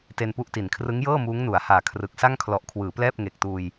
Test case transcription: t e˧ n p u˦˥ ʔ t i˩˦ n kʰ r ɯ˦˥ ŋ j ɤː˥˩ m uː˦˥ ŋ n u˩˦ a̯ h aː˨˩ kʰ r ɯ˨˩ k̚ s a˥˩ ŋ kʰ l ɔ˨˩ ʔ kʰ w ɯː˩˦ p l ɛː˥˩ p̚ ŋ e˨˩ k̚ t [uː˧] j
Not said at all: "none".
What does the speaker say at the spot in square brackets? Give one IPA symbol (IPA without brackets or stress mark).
uː˧